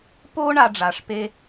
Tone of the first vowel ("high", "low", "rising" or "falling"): high